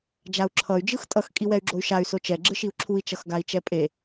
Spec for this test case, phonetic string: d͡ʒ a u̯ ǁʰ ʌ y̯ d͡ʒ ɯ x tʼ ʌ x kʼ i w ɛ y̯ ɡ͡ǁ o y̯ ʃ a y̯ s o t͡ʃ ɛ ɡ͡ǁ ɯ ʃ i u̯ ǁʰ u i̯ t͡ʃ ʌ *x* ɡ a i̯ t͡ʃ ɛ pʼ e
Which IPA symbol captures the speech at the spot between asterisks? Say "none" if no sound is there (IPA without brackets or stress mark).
x